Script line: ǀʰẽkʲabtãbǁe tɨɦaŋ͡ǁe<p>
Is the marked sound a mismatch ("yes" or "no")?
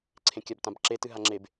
yes